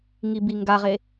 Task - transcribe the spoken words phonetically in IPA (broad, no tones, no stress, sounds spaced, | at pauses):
ŋ i b i ŋ ɡ a ʁ e